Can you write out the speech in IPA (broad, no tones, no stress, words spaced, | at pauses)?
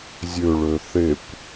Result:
zʲø ɭøθekʷ